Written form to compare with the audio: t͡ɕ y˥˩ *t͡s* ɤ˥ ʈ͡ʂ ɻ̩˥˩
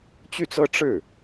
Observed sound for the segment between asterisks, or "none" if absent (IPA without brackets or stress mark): t͡s